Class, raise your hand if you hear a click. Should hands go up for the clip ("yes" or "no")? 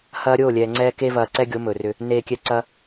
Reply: yes